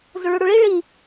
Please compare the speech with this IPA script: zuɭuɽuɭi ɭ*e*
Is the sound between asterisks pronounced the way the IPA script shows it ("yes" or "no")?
no